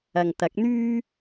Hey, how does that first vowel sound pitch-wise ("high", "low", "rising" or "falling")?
low